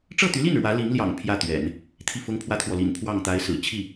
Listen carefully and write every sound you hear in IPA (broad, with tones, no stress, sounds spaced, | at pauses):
ʈ͡ʂ ɤ˥˩ t̪ y˧˥ l i˥˩ n ɻ w ä˧˥ l i˧˥ ŋ l j ɑ̰˨˩ ŋ pʰ j ä˥˩ t̪ ɥ ɛ̰˨˩˦ n | t̪ʰ i˥˩ f ʊ˥ ŋ pʰ w ä˥ t̪ʰ w ɔ˨ l ḭ˨˩ n pʰ w ɑ˥˩ ŋ t̪ a˧˥ ɪ̯ s ɹ̩˨˩ t͡ɕʰ i˥˩